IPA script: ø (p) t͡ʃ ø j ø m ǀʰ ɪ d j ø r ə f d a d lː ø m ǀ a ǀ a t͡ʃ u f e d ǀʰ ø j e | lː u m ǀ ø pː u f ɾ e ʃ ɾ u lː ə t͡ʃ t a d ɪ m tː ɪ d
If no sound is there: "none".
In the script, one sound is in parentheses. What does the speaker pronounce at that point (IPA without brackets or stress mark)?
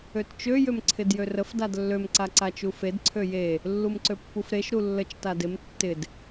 t